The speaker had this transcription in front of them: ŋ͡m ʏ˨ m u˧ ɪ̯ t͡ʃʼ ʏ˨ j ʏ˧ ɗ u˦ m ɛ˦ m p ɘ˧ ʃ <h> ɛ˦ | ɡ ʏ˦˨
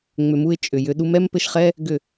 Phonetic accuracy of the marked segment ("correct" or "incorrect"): incorrect